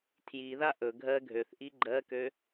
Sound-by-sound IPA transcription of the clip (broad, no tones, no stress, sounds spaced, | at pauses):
tʰ j i ð a ʔ ɵ ɡʱ ɜ ɡʱ ø θ ʔ i ɡ͡ǃ ɜ k ø